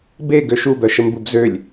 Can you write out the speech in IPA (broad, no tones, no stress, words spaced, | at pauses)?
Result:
be ɡøʃubœʃəm bubzølʲ